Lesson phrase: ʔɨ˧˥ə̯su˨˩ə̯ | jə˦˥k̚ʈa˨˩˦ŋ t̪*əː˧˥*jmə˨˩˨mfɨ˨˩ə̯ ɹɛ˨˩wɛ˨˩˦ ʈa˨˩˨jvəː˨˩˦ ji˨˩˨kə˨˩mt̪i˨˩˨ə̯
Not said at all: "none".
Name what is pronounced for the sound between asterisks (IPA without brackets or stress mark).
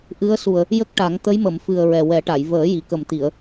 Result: ə˧˥